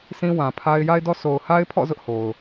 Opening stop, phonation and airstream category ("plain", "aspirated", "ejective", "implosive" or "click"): aspirated